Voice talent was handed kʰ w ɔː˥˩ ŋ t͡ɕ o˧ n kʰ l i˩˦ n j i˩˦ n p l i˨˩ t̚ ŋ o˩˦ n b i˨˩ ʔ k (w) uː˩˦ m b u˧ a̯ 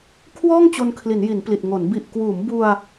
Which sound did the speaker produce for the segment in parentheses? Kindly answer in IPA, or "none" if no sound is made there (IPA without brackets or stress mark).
w